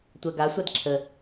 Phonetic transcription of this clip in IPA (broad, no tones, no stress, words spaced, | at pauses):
tʷɜɡasʷad ǁʰə